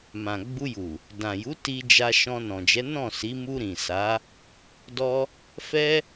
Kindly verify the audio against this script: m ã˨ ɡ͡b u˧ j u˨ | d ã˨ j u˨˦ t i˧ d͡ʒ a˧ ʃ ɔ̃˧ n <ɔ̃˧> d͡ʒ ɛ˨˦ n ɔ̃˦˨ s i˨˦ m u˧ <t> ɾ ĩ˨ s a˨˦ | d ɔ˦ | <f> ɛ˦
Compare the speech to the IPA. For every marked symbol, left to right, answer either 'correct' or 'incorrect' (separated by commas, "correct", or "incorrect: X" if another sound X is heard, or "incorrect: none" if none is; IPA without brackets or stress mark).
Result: incorrect: ɔ̃˨, incorrect: none, correct